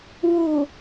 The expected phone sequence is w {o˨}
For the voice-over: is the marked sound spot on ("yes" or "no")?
no